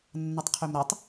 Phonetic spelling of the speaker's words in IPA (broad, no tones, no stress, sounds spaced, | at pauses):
nː ʌ tˤ qʰ ø m ɾ ʌ tˤ